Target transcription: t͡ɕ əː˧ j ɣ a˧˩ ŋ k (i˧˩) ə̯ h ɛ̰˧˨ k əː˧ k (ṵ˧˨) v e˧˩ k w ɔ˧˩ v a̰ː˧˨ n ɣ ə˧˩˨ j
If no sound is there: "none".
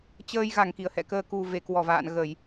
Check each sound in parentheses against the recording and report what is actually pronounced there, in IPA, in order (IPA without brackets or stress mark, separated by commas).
i˧˩, u˨˩